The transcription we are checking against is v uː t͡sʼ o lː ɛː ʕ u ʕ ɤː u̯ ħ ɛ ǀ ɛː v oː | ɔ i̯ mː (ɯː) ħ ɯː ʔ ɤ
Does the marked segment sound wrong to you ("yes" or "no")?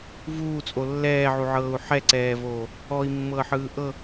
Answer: yes